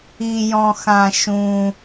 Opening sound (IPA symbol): i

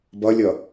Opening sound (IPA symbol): b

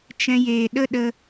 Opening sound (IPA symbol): t͡ʃ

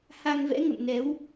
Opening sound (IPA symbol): h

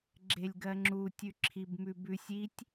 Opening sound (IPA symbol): ɡ͡ǁ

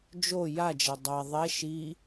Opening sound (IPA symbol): d͡ʒ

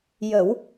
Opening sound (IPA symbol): j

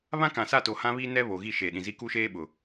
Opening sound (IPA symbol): β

